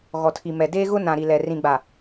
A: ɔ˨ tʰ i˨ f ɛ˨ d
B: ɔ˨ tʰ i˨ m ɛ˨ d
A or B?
B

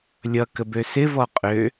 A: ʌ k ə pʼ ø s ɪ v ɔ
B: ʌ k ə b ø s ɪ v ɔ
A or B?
B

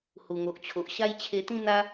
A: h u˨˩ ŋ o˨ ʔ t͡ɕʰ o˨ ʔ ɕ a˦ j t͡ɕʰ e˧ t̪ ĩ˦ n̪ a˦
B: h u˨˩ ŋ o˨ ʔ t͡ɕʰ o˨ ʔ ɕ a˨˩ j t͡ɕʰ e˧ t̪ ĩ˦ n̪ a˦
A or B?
A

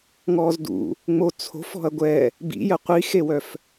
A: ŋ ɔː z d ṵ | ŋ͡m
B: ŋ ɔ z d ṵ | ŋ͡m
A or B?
A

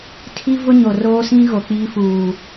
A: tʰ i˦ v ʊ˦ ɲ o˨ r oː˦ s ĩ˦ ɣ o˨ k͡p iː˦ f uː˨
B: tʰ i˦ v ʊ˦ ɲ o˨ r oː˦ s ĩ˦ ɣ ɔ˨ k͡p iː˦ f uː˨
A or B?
A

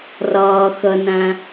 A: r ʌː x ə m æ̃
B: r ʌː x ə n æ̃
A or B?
B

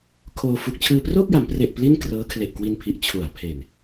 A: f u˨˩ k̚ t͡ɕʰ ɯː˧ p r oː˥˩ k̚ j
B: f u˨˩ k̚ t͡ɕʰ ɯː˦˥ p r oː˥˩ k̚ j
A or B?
A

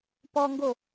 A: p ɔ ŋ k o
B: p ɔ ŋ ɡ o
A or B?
B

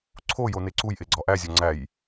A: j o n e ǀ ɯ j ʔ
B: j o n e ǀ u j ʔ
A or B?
B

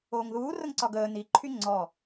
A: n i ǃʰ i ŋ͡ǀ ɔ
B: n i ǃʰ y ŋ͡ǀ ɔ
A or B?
B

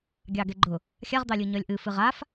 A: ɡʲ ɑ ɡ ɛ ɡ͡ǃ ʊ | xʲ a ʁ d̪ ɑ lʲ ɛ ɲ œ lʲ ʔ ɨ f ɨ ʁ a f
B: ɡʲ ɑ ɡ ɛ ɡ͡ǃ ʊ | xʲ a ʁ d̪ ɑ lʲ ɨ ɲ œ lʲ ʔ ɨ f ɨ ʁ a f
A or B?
B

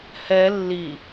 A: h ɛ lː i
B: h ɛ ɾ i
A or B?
A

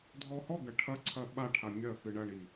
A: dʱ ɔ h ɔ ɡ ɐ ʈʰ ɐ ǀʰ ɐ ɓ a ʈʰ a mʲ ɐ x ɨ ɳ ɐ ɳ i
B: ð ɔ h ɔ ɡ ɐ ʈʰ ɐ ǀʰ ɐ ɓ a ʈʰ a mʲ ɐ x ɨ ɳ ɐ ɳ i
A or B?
A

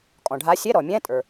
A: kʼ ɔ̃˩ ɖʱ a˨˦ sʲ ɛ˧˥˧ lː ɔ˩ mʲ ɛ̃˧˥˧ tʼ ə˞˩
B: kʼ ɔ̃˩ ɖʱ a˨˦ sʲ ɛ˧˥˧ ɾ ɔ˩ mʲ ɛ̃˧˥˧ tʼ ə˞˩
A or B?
B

